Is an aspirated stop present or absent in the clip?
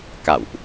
absent